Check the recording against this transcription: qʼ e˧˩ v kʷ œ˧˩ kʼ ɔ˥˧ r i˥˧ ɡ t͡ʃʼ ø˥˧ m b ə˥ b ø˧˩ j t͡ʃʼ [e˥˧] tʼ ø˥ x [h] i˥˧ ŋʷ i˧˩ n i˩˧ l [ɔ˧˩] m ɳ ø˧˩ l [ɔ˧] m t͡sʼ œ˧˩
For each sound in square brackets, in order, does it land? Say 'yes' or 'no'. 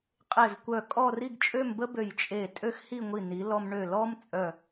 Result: no, yes, no, no

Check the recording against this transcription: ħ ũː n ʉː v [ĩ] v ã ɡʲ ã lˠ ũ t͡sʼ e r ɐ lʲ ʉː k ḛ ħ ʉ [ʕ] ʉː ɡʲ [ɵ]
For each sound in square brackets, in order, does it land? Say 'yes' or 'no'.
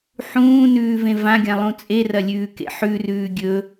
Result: no, no, yes

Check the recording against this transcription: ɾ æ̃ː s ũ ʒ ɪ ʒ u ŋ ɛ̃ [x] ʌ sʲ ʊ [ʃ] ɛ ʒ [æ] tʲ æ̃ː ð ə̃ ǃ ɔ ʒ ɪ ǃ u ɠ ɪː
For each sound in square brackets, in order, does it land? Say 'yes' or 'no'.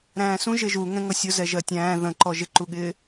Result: no, no, no

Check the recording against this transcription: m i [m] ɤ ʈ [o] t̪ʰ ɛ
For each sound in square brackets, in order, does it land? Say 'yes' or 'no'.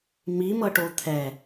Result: yes, yes

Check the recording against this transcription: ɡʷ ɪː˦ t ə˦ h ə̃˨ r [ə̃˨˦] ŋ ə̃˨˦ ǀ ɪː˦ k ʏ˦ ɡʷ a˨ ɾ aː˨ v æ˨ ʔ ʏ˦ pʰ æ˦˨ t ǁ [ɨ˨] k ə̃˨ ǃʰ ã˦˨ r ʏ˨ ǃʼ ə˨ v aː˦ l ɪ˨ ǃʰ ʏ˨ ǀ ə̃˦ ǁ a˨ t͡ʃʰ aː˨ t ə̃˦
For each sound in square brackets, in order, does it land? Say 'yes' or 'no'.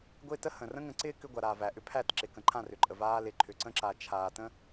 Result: no, no

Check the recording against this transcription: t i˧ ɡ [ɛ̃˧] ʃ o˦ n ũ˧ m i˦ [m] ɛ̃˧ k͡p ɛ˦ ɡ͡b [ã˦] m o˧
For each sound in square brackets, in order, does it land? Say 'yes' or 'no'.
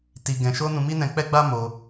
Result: yes, no, no

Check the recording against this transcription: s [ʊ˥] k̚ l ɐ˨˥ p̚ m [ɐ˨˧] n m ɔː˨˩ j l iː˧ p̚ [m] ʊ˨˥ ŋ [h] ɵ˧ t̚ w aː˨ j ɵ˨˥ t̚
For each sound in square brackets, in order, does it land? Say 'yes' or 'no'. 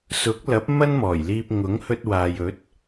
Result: no, no, no, yes

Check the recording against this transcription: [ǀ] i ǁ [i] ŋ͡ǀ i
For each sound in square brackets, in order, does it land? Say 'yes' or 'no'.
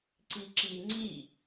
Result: yes, yes

